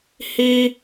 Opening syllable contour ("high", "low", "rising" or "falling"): high